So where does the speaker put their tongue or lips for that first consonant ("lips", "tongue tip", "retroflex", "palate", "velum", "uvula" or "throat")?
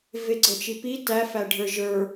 lips